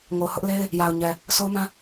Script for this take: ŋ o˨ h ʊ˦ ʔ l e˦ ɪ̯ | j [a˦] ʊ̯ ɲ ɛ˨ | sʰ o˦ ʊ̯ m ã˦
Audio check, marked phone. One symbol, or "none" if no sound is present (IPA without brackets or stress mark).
a˨